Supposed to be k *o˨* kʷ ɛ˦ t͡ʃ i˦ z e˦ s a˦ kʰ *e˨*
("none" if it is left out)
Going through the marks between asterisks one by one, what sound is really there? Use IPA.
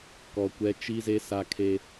ɔ˨, e˦

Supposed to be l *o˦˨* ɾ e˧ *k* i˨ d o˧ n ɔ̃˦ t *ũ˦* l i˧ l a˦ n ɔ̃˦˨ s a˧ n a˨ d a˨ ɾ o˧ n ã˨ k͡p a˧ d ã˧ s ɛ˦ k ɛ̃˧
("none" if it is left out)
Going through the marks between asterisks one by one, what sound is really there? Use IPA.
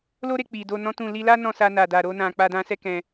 o˦, k͡p, ũ˦˨

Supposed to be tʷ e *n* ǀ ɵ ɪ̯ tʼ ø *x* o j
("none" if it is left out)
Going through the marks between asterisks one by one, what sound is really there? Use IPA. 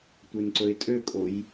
n, kʼ

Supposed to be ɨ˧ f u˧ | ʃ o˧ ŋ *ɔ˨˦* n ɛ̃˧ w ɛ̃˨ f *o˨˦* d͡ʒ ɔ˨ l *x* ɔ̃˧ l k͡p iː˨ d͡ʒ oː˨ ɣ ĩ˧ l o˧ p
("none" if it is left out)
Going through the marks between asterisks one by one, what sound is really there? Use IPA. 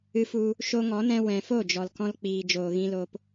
ɔ˨˦, o˦˨, k

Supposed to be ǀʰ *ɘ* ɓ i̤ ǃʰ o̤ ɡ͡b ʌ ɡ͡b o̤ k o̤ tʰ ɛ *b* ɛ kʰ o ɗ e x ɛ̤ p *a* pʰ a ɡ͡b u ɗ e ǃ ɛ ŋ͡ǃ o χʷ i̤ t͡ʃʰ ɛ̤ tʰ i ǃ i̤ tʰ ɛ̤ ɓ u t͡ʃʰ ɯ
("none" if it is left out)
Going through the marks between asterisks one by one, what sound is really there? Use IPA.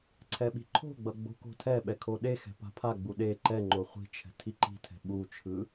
ɛ, ɓ, a̤

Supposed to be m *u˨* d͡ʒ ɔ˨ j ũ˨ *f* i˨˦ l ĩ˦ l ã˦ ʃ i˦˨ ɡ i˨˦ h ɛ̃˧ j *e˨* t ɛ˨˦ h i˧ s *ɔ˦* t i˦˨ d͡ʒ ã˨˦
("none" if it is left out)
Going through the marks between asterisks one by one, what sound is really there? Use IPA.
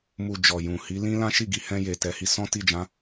u˨, h, e˨, ɔ̃˦

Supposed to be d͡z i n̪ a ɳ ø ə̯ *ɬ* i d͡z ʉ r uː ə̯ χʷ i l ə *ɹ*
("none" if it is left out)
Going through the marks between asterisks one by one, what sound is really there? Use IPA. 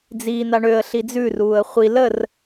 ɬ, r

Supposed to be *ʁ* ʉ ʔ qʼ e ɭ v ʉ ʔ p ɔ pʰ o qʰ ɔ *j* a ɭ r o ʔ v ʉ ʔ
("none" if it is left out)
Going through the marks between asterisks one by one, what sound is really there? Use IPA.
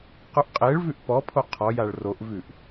q, j

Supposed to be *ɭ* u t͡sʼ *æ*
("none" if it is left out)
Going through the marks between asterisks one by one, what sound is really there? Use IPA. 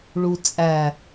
ɭ, æ

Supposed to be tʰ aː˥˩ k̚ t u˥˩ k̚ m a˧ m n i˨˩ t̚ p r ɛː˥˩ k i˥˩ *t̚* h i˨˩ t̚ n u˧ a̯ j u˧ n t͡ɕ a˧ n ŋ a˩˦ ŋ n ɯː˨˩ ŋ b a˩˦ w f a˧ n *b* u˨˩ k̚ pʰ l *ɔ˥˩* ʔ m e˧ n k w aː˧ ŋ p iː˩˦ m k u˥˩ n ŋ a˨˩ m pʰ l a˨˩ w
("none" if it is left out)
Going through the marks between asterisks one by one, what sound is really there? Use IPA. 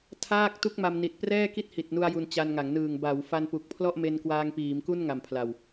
t̚, p, ɔ˥˩

